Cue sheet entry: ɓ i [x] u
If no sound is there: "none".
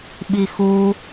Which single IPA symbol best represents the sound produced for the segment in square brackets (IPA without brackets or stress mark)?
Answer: x